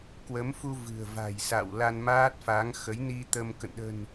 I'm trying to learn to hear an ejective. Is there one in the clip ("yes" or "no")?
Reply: no